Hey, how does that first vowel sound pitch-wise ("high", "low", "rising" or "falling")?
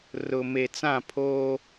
low